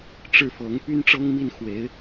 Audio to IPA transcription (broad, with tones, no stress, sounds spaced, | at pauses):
ʈ͡ʂ ɻ̩˥˩ f ɤ˧˥ ŋ p y˥ n ʈ͡ʂ ɤ˥ ŋ m i˥˩ n x w e˧˥ ɪ̯